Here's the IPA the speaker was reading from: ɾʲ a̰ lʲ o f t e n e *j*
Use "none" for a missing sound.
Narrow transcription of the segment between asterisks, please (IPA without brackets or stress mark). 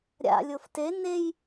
j